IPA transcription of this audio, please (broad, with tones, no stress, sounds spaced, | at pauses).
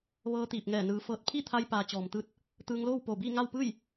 ʋ ɤː˧ t̪ iː˧˩ p̚ ŋ ɛː˧˩ n ɯː˩˧ f ɤː˧˩ t̚ pʰ i˥˨ t̪ʰ a˧ j p aː˩˧ t͡ɕ ɔː˩ m t̪ ɯː˧ t̚ | t̪ ɯː˧ ŋ l oː˥˨ w p oː˧˩ b iː˥˨ ŋ a˥˨ w p ɯː˥˨ j